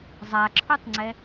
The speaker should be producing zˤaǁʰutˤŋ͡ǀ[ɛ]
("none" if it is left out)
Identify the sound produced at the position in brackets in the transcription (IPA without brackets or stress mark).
ɛ